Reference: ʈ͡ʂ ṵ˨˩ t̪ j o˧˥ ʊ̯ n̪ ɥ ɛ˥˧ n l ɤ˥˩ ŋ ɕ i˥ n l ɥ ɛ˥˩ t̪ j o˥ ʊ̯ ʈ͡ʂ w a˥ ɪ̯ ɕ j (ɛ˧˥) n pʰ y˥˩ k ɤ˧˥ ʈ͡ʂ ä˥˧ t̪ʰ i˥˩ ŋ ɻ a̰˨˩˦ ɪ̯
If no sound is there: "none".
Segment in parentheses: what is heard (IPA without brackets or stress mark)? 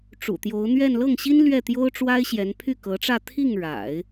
ɛ˧˥